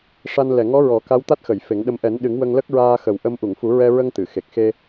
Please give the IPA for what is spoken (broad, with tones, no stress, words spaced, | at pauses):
ʂa˧n lɛ˨˩ŋɔ˧˥ɹɔ˨˩˦ ka˧˥wt̪a˦˥t̚xə˨˩˨j fe˨˩˦ŋɗə˧m ʔɛ˨˩˦nɗɨ˨˩˦ŋ wə˧ŋlə˦˥k̚ɹaː˧ xə˨˩wʔə˧m ʔu˨˩˨ŋfu˨˩˦ɹɛ˧ɹə˧ŋ t̪ɨ˨˩˨xe˨˩k̚ xe˧